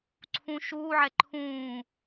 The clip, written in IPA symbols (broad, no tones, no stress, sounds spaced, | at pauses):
ǀʰ ũ ʃ uː ʕ ɛ ǃʰ ũː